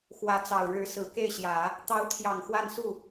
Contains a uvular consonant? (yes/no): no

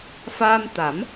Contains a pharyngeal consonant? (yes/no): no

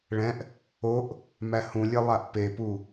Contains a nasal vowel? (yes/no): yes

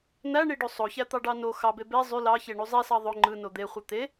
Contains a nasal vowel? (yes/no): no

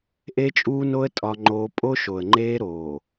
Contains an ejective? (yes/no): yes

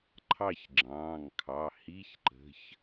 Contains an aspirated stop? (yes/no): yes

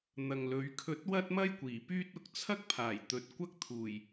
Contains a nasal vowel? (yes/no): no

